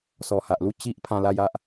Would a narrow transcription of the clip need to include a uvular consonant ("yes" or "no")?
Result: no